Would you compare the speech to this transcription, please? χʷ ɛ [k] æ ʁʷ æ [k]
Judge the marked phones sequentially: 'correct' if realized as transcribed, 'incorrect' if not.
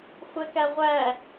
correct, incorrect

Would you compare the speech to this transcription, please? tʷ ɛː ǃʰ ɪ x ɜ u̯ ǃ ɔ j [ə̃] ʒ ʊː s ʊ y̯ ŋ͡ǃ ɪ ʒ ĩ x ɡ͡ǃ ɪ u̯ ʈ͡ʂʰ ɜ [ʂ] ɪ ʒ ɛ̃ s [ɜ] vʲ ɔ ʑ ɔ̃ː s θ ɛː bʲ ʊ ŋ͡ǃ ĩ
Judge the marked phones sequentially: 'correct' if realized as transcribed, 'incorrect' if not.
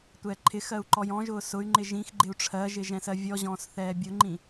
incorrect, incorrect, correct

